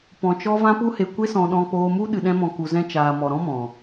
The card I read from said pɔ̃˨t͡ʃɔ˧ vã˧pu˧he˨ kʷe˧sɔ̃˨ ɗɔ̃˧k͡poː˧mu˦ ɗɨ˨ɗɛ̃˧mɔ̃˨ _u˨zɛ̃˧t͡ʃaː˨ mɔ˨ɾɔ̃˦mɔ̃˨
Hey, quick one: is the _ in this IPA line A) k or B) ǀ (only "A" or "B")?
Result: A